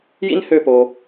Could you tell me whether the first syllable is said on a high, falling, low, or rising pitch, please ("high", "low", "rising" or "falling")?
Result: high